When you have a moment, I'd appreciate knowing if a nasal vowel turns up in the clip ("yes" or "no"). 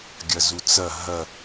no